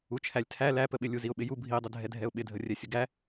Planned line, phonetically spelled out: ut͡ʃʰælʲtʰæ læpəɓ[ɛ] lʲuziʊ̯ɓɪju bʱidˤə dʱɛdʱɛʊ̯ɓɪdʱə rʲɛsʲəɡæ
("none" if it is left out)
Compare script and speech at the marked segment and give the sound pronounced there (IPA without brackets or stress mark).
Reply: ɪ